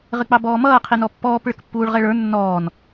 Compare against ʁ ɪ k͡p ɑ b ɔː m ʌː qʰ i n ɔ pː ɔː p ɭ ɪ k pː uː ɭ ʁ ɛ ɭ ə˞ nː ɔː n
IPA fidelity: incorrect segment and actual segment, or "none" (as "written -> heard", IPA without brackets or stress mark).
none